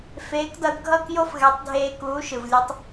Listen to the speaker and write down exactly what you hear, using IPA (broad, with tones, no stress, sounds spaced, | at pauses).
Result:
f eː˨˦ k d ʌ˧ d ɡʱ ʌ˦˨ k j o˦ f ɣ ɛ˨˦ tˤ dʱ eː˧ k uː˨˦ ʃ ɯ˨ v lʲ ɯ˧ tˤ